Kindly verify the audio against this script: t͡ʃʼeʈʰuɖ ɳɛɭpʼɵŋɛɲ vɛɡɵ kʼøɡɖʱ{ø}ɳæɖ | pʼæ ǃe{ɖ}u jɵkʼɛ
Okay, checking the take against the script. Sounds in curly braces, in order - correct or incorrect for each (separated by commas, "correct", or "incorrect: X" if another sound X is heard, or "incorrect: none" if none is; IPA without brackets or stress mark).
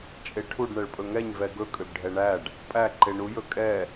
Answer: incorrect: ɛ, incorrect: ɳ